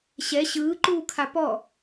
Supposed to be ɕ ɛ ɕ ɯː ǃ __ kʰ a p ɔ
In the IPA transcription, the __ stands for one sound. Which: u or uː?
uː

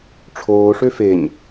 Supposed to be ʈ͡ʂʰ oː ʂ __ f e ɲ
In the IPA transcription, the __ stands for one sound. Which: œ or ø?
ø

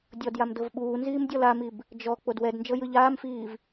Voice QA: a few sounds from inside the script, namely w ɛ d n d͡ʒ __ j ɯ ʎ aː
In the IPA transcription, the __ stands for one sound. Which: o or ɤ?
ɤ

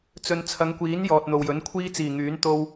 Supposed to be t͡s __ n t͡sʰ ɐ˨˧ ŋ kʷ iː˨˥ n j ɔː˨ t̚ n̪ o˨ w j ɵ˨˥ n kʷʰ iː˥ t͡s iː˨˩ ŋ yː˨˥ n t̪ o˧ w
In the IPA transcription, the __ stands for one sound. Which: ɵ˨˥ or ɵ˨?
ɵ˨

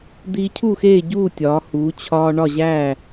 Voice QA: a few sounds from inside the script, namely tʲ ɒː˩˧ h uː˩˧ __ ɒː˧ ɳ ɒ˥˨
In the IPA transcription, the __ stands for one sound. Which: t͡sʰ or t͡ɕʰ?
t͡ɕʰ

